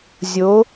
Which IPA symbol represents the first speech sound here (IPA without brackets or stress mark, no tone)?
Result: zʲ